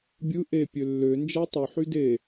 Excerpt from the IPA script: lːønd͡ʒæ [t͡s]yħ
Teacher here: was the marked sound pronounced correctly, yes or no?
no